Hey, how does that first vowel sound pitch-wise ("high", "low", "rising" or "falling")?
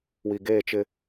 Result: low